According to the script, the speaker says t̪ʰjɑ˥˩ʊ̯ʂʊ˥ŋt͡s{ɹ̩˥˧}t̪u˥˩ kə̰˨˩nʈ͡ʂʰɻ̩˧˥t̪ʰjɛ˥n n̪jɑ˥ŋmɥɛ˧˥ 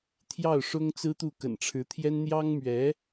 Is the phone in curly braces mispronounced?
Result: yes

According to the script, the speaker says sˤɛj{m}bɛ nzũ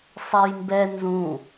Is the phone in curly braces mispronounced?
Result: no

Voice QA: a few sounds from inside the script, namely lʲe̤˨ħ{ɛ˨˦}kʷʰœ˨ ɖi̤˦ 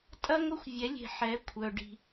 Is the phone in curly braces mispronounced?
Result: no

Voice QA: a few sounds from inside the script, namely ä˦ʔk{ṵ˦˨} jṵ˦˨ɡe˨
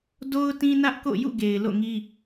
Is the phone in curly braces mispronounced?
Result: yes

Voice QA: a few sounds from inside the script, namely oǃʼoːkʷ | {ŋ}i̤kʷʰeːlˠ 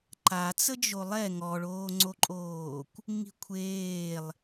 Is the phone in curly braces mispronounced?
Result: no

